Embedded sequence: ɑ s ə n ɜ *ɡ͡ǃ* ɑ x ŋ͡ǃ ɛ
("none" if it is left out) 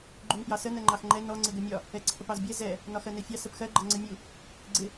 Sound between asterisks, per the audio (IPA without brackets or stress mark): ŋ͡ǃ